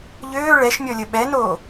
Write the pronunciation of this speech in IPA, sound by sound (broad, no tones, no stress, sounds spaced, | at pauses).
ʎ øː ɭ ɛ ʃ mʲ ɔ lʲ ə ɓ ɛ n oː